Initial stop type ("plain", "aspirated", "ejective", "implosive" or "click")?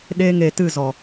implosive